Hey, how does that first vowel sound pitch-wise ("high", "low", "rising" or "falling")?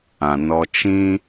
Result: low